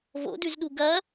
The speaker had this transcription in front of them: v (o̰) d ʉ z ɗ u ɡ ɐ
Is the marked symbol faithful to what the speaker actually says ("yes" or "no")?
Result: yes